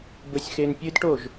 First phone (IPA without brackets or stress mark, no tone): b